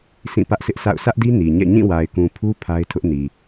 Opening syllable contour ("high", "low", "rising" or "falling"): falling